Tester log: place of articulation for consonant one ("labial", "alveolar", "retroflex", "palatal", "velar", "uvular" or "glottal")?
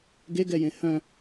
velar